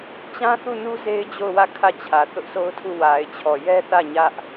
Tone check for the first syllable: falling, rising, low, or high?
high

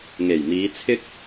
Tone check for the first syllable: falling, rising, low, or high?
low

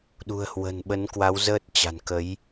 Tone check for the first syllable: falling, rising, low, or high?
low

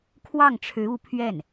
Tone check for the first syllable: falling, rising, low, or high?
falling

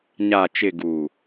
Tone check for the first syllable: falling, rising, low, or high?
low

